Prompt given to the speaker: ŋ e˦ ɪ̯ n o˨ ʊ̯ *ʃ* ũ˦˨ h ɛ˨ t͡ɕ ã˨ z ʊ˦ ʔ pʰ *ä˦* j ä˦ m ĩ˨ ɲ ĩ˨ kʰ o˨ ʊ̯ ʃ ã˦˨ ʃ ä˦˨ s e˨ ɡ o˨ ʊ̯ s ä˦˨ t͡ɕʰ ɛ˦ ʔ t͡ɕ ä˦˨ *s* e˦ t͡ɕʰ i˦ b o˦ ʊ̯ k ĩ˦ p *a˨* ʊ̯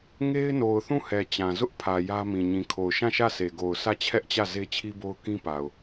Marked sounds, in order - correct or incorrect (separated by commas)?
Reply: incorrect, incorrect, incorrect, correct